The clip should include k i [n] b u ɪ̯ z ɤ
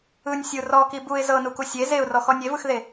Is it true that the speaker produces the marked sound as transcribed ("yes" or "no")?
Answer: no